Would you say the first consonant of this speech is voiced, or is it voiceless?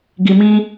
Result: voiced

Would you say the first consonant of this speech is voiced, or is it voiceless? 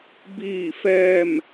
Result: voiced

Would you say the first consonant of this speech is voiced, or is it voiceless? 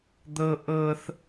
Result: voiced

